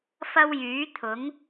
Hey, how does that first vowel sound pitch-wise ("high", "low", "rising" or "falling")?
high